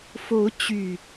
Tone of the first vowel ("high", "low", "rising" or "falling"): rising